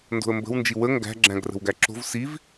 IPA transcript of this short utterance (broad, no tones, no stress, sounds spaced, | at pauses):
n d o̤ ə̯ m b ə̤ w n d͡ʒ i w ə ŋ ɡ æ̤ ɡ͡ǁ æ̃ ɡ r ə̤ w ɡ æ ǁ o̤ v s i v